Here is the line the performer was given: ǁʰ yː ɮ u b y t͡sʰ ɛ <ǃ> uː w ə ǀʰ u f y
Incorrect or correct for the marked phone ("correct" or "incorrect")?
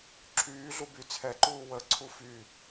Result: correct